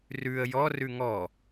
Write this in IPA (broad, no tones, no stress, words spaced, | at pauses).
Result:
rʉə̯ jɔrʉ ŋɔ